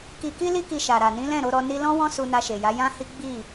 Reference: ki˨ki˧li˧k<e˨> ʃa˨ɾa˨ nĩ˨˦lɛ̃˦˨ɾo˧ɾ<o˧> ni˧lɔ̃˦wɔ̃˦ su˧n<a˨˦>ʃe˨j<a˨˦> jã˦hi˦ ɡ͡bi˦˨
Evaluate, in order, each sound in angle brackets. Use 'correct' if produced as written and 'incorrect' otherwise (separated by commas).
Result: incorrect, incorrect, incorrect, correct